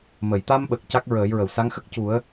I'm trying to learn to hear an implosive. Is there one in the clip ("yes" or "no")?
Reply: yes